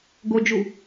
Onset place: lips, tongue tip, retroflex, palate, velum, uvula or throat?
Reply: velum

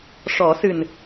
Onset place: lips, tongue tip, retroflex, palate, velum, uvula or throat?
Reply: retroflex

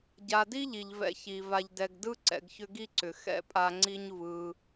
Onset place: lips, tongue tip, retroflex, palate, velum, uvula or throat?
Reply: palate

